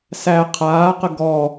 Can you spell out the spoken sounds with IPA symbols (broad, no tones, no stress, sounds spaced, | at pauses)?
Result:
s æ qʰ aː q ə ɡ ɔ